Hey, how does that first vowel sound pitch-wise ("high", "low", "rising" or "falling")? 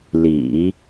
low